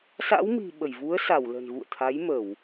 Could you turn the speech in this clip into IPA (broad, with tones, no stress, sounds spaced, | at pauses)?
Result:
s a̰˧˥ w m i̤˨˩ ɓ ə˧˩ j v u˨˦ ə̯ s a˧˩ w l ə̤˨˩ n ɣ ṵ˧˨ ə̯ t̪ʰ a˨˦ j m ə˧˩˨ w